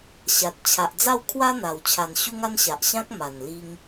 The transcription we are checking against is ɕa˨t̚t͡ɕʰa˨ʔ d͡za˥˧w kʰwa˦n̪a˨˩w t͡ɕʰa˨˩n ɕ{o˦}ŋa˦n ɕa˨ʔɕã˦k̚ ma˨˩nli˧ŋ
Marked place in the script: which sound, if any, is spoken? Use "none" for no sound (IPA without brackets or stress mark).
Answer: u˦